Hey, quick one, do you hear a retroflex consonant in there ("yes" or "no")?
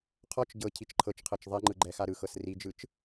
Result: no